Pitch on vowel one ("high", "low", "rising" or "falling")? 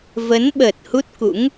rising